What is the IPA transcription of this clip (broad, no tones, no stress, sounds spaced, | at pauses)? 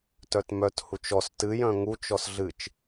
t œ t m œ t h u t͡ʃ ɔ s t ɨ j œ̃ ŋ u t͡ʃ ɔ s ɮ ɨ t͡ʃ